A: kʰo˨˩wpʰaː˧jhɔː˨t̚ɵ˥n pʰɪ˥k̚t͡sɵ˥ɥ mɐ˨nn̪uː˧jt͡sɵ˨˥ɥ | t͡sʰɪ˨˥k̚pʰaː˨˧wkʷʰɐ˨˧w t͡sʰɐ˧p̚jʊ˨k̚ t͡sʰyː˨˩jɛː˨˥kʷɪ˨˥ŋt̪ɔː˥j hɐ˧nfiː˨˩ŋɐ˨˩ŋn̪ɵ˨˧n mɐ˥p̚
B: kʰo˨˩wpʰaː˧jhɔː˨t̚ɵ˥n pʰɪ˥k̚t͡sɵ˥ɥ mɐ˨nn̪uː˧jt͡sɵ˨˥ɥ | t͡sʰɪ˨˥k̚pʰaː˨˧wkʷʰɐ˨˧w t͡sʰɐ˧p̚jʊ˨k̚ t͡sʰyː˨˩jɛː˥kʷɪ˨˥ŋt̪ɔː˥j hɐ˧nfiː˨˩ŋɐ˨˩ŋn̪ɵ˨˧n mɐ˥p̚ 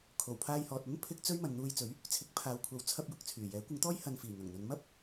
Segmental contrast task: A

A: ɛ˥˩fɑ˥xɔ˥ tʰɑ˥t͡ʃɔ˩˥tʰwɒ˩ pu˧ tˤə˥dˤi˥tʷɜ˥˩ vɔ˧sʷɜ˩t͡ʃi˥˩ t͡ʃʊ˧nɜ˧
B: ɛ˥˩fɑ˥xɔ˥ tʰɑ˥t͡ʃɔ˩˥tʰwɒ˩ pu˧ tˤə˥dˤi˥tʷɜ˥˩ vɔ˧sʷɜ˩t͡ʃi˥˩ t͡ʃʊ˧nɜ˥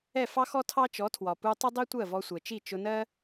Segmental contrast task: B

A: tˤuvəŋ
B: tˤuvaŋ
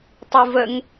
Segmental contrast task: A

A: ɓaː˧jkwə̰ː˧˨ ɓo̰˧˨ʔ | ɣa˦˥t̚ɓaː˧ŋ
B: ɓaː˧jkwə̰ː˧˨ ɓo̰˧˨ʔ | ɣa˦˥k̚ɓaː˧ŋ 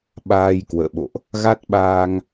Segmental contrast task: A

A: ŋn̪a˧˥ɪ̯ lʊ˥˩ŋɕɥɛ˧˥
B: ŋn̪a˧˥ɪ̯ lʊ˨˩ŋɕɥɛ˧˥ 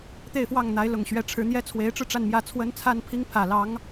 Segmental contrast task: B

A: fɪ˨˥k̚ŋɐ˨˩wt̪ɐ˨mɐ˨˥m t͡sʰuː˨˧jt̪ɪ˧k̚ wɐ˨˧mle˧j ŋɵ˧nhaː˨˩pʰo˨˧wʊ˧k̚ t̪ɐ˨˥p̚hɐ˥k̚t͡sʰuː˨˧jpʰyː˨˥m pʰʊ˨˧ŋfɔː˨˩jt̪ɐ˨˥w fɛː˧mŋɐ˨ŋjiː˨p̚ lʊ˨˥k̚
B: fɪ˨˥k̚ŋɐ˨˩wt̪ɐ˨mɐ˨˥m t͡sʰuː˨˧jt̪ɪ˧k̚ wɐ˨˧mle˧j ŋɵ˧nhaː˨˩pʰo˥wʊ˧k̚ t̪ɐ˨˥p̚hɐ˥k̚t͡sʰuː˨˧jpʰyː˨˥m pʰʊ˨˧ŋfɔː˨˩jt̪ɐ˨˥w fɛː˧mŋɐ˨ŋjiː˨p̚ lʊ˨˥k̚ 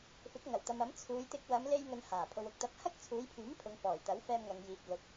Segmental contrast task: A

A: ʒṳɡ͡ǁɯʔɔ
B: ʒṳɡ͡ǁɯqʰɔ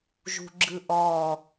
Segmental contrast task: A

